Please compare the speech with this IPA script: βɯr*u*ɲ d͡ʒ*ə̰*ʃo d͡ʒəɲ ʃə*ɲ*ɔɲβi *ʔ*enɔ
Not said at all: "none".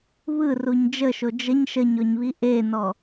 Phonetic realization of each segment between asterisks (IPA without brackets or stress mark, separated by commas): u, ə, ɲ, ʔ